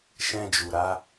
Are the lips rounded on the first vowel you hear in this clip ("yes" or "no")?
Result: no